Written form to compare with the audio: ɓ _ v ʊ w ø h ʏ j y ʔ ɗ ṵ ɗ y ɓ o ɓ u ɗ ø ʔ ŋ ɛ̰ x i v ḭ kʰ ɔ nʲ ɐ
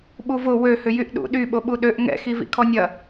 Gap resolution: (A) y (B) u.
B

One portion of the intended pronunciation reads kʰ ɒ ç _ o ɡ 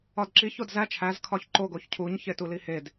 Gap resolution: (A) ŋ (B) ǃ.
B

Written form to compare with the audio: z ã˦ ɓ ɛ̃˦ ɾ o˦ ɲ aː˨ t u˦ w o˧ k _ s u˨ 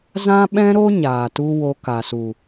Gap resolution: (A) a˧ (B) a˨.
B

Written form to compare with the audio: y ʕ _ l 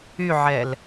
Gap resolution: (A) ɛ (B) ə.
A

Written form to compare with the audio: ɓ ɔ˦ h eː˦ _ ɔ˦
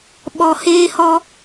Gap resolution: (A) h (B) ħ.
A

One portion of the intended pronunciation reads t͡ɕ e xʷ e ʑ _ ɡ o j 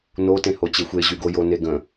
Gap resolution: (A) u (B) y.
B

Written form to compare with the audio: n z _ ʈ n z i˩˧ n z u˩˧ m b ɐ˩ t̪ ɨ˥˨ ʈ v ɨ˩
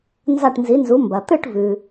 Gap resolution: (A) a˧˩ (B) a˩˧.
A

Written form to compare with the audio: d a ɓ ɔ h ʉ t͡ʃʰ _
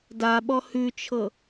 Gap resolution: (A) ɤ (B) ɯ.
A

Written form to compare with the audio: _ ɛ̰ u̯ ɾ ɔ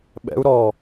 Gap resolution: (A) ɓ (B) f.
A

